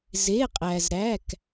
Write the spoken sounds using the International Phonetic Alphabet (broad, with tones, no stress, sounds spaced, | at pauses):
z e˧˥˧ qʼ æ˧ z ɾ æ˧˥˧ k